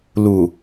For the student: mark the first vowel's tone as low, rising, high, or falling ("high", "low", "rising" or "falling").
low